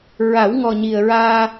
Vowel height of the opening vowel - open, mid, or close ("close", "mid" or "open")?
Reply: open